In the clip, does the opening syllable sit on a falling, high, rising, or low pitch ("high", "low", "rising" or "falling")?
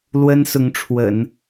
high